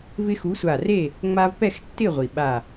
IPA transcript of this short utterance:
v ɪ˦ x u˨˥ sʷ a˧˩ r e˥˨ | ŋ͡m a˦ v p ɛ˥˨ x tː ɪ˥˨ ʁʷ i˩ ɓ a˧˩

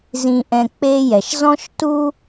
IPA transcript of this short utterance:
z ĩ˧ ʔ ɛ̃˧ k͡p e˥ j ɛ˩ ʃ z ɔ̃˥ ʃ t u˥

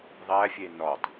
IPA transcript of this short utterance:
ðˤ æ fʲ e n ɒ tˤ

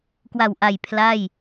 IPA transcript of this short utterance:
k w a˨˩ w ʔ a˨˩ j pʰ l a˥˩ j

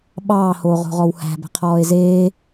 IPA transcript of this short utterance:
ɓ ɑː h oː ʁ o̤ ʁ ɔ w h æ̤ b ɛ̤ qʰ ɔː e̯ z eː

